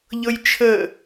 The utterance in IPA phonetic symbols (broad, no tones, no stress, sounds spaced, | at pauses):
ʎ ɤ j t͡ʃʰ ə